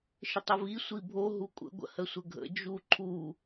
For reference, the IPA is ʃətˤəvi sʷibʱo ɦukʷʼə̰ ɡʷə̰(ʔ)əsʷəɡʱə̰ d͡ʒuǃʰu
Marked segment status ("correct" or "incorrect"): incorrect